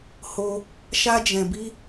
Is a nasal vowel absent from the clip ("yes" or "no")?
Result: no